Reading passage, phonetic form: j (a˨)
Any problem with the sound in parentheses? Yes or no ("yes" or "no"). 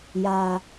no